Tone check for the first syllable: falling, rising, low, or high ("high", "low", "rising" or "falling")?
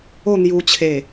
falling